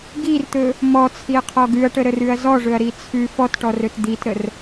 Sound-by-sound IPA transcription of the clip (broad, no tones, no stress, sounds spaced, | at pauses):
ɡ i r t̪ ɵ | m ɔ t͡sʰ i ɐ̯ qʰ ɔ ɡ ʉ ɐ̯ ʈ ə ɾ ə r ʉ ɐ̯ z ɔ ʐ ɵ ɐ̯ ɾ i t͡sʰ ʉ f ɔ t ʈ ɔ r ɵ t d̪ i t ɾ ə r